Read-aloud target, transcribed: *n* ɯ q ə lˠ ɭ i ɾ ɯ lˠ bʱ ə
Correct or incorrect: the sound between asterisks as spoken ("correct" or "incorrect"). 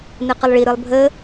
correct